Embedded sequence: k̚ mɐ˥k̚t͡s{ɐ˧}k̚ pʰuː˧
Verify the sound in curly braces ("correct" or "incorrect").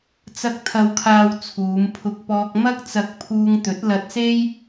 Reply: correct